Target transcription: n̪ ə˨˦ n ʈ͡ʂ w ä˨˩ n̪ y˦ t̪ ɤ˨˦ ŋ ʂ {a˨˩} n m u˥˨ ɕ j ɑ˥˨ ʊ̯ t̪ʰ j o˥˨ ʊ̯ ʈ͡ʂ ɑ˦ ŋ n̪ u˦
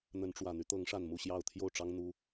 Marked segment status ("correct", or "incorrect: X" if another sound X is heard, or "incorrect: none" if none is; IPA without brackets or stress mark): correct